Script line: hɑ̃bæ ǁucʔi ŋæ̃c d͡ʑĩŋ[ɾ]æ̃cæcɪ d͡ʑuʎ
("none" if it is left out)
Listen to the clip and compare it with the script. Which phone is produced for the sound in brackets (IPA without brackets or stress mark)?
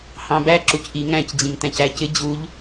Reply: t